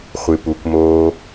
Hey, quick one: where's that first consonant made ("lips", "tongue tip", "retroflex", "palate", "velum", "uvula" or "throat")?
uvula